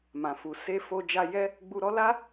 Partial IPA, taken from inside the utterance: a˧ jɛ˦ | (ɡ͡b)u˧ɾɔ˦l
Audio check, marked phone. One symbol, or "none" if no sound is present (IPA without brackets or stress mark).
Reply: ɡ͡b